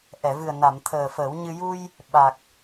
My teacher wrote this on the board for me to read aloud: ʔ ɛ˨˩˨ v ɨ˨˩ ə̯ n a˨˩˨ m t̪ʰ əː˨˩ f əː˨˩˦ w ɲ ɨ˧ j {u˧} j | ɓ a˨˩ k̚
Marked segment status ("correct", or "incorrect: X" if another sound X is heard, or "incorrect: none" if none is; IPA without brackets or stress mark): correct